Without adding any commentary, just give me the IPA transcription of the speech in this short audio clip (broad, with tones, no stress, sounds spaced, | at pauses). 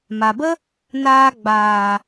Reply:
m a˨ b ə˦ | n aː˧ ɡ͡b aː˨